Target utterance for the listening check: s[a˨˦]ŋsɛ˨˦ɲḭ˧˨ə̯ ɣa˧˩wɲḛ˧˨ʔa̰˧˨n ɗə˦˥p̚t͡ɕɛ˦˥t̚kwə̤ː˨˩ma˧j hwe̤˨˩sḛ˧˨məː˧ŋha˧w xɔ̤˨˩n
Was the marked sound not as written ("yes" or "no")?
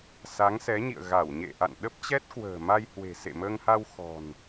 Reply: no